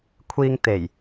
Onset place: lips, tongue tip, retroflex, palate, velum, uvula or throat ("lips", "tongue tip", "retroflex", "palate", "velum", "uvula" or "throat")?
velum